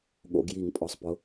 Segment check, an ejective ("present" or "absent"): present